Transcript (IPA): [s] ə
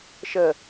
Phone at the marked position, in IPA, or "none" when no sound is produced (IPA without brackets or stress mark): ʃ